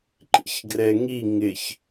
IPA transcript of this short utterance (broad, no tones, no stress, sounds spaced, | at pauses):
ǃ ḭ ç ɡ r ɛ ŋ i ŋ ɪ ç